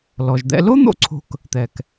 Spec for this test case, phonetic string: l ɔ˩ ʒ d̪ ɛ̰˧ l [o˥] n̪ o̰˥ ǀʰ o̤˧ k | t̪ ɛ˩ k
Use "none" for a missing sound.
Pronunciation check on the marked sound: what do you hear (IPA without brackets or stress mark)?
o˥